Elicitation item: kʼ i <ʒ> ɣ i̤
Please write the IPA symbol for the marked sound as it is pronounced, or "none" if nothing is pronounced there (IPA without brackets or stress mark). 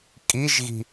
ʒ